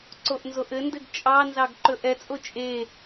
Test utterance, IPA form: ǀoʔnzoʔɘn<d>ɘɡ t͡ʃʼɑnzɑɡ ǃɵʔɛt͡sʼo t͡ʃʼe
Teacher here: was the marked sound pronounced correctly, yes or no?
yes